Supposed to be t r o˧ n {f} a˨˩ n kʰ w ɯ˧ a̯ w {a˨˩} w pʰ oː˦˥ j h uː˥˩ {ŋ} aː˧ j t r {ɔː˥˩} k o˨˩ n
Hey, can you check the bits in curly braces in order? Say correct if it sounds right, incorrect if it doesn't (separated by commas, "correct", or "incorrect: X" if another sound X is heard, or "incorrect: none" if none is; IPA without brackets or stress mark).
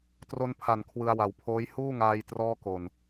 incorrect: pʰ, correct, correct, correct